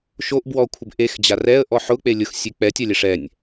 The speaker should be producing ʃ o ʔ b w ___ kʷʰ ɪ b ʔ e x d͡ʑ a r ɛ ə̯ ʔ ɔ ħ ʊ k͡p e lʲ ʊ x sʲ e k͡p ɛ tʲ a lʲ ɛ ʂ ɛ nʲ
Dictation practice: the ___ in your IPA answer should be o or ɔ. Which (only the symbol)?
ɔ